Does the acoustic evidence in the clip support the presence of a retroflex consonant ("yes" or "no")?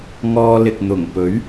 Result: no